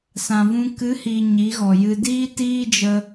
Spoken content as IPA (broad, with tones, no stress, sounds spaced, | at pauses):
s ã˨ v ũ˧ k ɨ˨˦ h iː˨ ɲ i˨˦ ɣ ɔ˨ j ɨ˧ d iː˧ t iː˦ d͡ʒ ə˧